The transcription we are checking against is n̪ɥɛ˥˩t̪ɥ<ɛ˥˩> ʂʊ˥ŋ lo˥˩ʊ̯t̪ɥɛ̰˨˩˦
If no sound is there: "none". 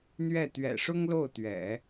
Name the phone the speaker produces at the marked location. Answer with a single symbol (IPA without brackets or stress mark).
ɛ̰˨˩